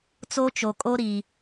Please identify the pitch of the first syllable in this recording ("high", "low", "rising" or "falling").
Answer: high